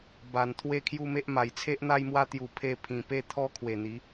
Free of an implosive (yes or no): yes